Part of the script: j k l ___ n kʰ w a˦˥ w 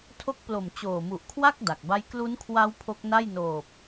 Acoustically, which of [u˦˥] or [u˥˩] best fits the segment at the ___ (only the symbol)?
u˦˥